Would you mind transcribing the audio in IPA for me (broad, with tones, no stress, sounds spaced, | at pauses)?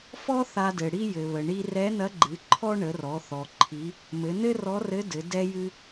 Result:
f ɔ˥ θ a˧ d ɘ˩ ɽ i˥ j ɘ˩ β ə˩ ɳ i˧ r ɛ˧˥ n ɐ˧˥ ɡ͡ǃ ɨ˩˧ ǃʰ ɔ˥ ɳ ə˩˧ r ɔ˩˧ θ ɔ˩ ǃʰ i˩˧ | m ɘ˩˧ n ɘ˥ r ɔ˧˥ r ɘ˧˥ d ɘ˩˧ d ɛ˧ j ɨ˧